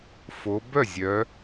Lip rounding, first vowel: rounded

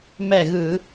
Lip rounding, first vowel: unrounded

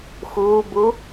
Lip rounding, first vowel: rounded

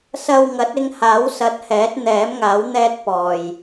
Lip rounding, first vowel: unrounded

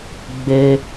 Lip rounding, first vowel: unrounded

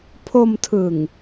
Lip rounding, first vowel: rounded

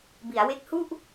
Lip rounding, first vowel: unrounded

